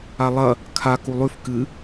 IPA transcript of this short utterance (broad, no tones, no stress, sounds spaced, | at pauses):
a lˠ ɐ | kʰ a k u lˠ ʉ f k ɨ